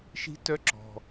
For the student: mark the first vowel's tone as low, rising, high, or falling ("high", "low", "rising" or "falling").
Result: rising